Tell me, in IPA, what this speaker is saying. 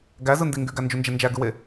ɡ æ z ɯ n d i ŋ ɡ y ɡ æ n d͡ʒ u n d͡ʒ e n d͡ʒ æ ɡ ɯ w e

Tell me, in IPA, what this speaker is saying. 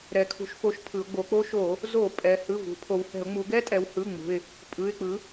ɾ ɛ˩˧ kʰ ṳ˩˧ ʃ f o˩˥ ʃ pʰ ɯ˩˧ ʊ̯ ɡ͡b o˩˧ k͡p o˦ ʃ o˧˩˧ | z o˧˩˧ pʼ ɛ˩˧ h ɯ˩˧˩ v ṳ˩˧ pʰ o˩˧ w h ɛ̤˧˩˧ ʊ̯ ŋ͡m u˩˧ ɡ ɛ˦ tʼ ɛ˩˧ w h ɯ˩˧˩ ŋ͡m ṳ˩˧˩ ɪ̯ | pʼ ɯ˩˧˩ ɪ̯ k͡p ɯ˩˥

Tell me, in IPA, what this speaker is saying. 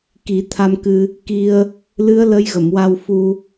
k i˨˩˦ t̪ʰ a˧ m k ɨ˧ | k i˧ ə̯ | l ɨ˧˥ ə̯ l ə˧ j ɣ ə˨˩˨ m w a˧ w f u˧

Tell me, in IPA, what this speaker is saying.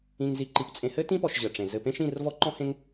ĩ˨ ŋ z i˨ ǃ i˨ p t͡sʼ ẽ˨ h ɘ˦ t ĩ˦ p ɔ˨ ʃ ʑ ɘ˨ ʈ͡ʂ ẽ˨ z ɘ˨ p ẽ˦ ʃ ĩ˦˨ r v ɔ˦ ǃ ɔ̃˦ h ẽ˦ ŋ

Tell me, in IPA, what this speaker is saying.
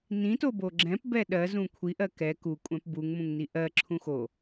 n ĩ t o b o ɡ͡ǁ ɛ̃ p b ɛ ɗ ɜ z ũ kʷʰ i ʔ ɜ k ɛ k u kʷʼ ɛ̃ p b u ŋ m ũ ŋ n i ʔ ɜ ǁʰ ũ x o

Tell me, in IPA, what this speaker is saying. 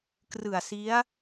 k r ɯ˨˩ a̯ s i˦˥ a̯

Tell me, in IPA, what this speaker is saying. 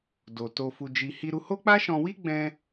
d o˨ t o˧ f u˧ d͡ʒ i˧ h i˧ ɾ u˧ h o˦ k͡p a˦ ʃ ɔ̃˧ w i˦ ɡ͡b ɛ̃˦

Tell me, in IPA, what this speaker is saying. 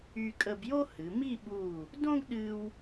y˧ kʼ ə˧ b j o˥ h ɨ˩˧ m i˥˧ ɓ u˧˩ | d õ˥ ɡ ɗ ɨ˧ w

